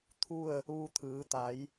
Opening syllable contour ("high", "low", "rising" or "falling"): falling